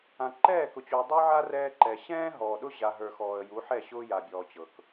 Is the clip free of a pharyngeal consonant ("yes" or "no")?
no